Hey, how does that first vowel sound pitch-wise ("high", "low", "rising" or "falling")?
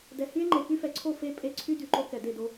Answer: low